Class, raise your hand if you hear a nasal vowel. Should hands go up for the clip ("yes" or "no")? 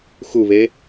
no